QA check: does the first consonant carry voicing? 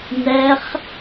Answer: yes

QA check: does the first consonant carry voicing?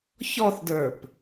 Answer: no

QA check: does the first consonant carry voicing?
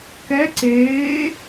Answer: no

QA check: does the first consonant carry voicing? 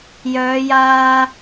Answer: yes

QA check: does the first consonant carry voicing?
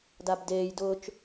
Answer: yes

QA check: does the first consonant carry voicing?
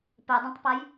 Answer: no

